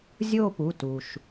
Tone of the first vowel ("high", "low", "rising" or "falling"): falling